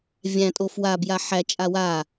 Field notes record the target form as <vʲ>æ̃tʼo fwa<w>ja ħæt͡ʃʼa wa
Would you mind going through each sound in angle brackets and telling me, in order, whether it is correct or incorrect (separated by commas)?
correct, incorrect